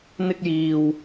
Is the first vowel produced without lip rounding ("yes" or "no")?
yes